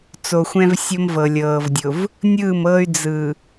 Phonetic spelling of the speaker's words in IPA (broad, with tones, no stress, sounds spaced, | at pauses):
t͡s o˨ xʷ ɛ̃˦ v sʲ o˦ m v ɤ˨ lʲ ɤː˨ v dʲ ʊ˨ v | nʲ ɯː˦˨ m ɤː˦ y̯ d͡z ɯ˨